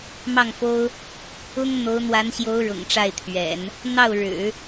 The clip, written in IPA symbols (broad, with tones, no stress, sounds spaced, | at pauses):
m ɑ˥˩ ŋ f o˥ ʊ̯ | ʊ˥ ŋ n̪ o˧˥ ʊ̯ n̪ w a˧˥ n ɕ j o˧˥ ʊ̯ ɻ ʊ̰˨˩ ŋ ʈ͡ʂ a˥˩ ɪ̯ t̪ʰ ɥ ɛ̰˨˩˦ n | n̪ ɑ˥˩ ʊ̯ ɻ ɻ̩˨˩˦